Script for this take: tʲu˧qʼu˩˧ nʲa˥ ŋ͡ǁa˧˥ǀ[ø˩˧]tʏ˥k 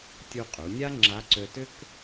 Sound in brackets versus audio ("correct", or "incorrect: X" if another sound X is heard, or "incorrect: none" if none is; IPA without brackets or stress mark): incorrect: ø˧